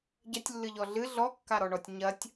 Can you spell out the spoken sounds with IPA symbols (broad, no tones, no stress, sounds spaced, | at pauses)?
ɟ ɐ tʲ lː ɨ ʎ ɔ ɮ ɨ ɮ ɔ kː a ɾ ɔ ɳ ɔ tʲ ɲ ɐ tʲ